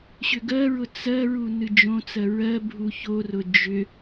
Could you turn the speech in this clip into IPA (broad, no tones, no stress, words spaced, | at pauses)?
ɕʏɡɜɹʊ t͡sɜɹu nɨd͡ʒõt͡sɜ ɹɜ bʱuçorʊ d͡ʒʏ